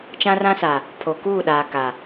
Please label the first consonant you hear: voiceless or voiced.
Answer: voiceless